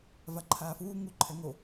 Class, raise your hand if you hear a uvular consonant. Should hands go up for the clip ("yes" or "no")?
no